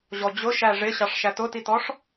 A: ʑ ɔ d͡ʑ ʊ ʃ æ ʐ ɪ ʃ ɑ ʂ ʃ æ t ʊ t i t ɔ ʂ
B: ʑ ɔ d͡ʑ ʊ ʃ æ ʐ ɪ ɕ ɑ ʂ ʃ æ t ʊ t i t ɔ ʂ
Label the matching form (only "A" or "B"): B